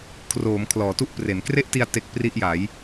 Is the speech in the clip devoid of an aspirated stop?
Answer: no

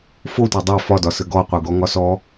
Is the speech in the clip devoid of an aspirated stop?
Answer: yes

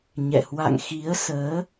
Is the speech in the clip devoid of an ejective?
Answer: yes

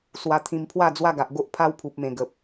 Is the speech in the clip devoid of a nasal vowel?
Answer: no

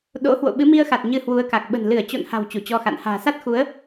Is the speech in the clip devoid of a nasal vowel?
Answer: yes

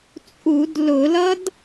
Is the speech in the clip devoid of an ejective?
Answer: no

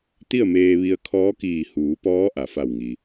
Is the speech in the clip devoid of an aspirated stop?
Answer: no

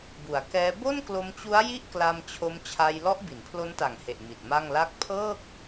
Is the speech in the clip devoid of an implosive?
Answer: yes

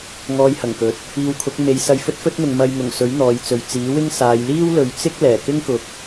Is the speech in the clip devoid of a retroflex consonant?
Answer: yes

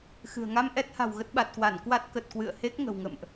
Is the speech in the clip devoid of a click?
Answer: yes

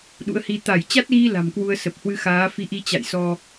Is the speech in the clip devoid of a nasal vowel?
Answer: yes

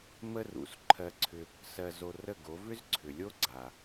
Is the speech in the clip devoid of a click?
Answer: no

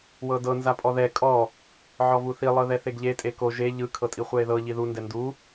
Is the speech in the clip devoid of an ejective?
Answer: no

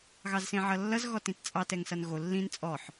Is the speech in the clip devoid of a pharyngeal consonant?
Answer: no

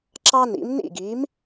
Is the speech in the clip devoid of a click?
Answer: no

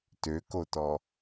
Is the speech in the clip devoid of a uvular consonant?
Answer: yes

